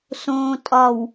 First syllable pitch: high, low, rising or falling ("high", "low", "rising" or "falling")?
low